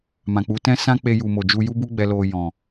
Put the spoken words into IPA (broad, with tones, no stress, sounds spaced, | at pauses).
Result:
m ã˨ k͡p u˨˦ t ɛ̃˦ s ã˦ k͡p e˧ j u˨ m o˨ d͡ʒ u˧ j u˦ b u˦ ɡ͡b ɛ˧ l o˧ j ɔ̃˨